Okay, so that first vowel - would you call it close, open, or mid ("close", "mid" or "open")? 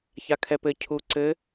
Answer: open